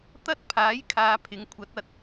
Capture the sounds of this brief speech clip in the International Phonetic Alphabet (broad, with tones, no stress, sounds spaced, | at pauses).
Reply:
t̪ ɐ˥ t̚ pʰ aː˨˥ j kʰ aː˨˧ pʰ ɪ˨˥ ŋ kʷʰ ɐ˨˥ t̚ ɐ˧ t̚